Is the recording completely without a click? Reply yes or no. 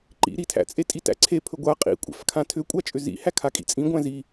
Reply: no